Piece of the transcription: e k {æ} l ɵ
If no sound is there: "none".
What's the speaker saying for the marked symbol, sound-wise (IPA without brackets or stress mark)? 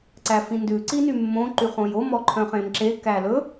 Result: æ